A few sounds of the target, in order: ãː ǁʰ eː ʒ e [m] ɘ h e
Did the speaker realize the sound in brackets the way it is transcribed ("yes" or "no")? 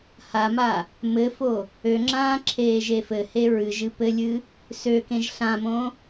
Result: no